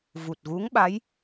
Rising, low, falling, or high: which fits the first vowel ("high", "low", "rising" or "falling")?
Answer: low